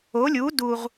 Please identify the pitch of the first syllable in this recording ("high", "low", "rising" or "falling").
rising